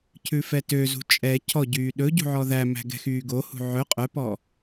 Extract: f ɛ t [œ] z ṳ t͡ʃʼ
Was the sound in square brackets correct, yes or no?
no